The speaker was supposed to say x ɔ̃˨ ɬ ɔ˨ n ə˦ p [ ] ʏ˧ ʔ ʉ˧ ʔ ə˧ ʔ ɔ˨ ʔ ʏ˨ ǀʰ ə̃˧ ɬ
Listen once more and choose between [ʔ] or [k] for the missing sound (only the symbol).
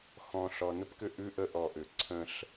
k